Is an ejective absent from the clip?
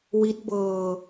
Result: yes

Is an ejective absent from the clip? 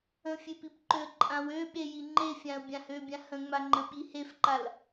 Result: no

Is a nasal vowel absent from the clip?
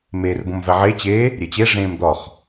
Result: no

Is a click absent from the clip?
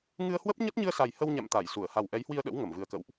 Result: yes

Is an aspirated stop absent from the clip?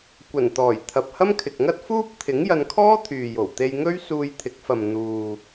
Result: no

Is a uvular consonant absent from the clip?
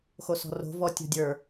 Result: yes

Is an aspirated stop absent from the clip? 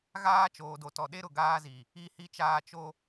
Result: yes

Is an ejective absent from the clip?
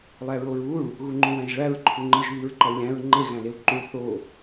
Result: yes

